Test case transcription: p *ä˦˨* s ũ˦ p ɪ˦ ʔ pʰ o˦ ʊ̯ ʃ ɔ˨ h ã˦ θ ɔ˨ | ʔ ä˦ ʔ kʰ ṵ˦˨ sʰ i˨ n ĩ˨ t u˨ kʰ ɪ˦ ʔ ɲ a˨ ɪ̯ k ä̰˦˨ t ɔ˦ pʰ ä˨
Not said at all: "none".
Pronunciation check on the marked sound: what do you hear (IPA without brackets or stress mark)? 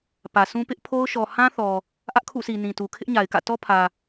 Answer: ä˨